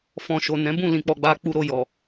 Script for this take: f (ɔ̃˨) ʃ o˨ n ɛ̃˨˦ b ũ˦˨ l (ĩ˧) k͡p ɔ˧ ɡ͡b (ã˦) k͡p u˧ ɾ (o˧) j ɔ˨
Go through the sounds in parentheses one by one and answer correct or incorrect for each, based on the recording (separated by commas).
correct, correct, incorrect, correct